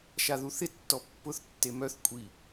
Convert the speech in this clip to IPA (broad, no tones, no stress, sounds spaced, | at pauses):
ʃ a ð u θ ɪ tː ɔ pː ʊ θ tː e m œ θ kʷʼ i